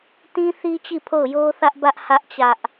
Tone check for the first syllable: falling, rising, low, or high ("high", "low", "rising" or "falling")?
high